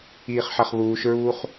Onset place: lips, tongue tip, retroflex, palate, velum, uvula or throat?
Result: uvula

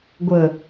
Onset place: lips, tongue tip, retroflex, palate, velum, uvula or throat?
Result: velum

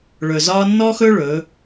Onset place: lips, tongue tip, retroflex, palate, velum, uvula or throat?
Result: retroflex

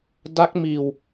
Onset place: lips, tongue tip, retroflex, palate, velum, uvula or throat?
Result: tongue tip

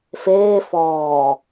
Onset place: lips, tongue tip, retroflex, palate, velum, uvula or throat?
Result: lips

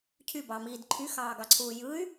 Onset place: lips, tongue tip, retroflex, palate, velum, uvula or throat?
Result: palate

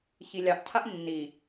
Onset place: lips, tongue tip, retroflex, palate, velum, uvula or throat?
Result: palate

